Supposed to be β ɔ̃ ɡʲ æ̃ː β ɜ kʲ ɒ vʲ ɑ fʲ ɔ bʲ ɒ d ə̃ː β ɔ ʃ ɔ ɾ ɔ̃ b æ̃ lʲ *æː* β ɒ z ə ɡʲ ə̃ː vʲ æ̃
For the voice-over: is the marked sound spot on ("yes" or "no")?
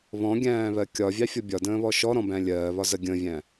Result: no